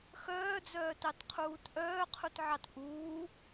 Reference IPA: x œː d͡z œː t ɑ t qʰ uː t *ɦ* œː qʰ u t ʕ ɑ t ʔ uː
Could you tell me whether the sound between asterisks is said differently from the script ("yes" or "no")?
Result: yes